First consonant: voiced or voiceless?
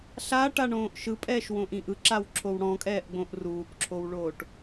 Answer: voiceless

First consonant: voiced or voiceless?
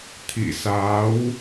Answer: voiceless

